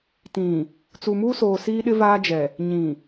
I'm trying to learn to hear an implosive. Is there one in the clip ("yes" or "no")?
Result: yes